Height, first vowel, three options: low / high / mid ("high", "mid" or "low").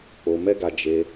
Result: mid